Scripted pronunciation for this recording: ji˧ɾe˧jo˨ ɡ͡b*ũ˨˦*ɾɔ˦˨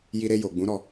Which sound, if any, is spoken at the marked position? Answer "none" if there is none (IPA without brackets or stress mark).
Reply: ũ˨˦